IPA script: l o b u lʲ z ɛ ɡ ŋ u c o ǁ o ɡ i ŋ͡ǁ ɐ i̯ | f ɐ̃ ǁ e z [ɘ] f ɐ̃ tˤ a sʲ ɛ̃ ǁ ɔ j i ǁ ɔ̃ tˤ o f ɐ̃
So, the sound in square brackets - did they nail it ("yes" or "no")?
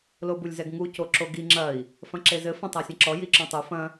yes